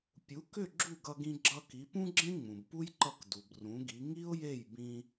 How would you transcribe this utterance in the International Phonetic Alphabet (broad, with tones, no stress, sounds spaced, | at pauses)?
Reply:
pʲ u˩˥ k ʏ˥˩ ɡ͡ǁ u˥˩ ɡ ʌ˧ ɡ ĩ˧ ɡ͡ǁ ʌ˧ k i˩˥ p ũ˥ ɡ͡ǁ ẽ˥ ŋ͡m ũ˩ b p u˥ j ǃ ʌ˥˩ k d u˩ b r ũ˩˥ ɡ i˩˥ ŋ i˥ ʊ̯ j e˥˩ j b ĩ˧